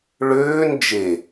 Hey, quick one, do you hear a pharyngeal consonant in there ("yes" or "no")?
no